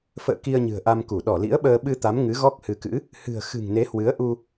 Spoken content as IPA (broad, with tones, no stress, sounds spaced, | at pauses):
f ə̰ː˧˨ k i˧ ə̯ ɲ ɨ̤˨˩ ə̯ ʔ a˧ m k u˧˩ ɗ ɔ˧˩ l ḭ˧˥ ə̯ ɓ əː˧ ɓ ɨ˧ t̪ a˨˦ m ŋ ɨ˨˦ ɣ ɔ˦˥ k̚ h ɨ˨˦ k ɨ̰˧˥ | h ɨ̤˨˩ ə̯ x ɨ̤˨˩ ŋ n e˨˦ h w ɨ˨˦ ə̯ ʔ u˧